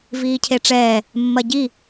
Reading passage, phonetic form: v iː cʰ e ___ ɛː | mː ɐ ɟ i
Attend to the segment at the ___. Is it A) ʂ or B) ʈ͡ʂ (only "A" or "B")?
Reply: B